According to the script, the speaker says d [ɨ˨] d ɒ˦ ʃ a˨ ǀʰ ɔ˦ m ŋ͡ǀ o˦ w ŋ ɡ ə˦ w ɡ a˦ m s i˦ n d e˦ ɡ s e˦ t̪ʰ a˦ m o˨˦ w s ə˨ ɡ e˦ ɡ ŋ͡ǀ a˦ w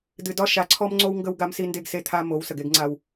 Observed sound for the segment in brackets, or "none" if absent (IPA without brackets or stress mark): ɨ˨